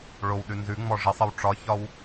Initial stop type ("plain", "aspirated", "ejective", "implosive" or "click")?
implosive